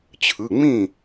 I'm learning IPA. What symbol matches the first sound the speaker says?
t͡ɕʰ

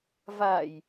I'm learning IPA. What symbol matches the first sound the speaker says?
v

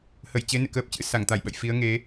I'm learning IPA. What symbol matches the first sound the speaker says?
h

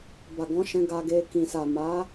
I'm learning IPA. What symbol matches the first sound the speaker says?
b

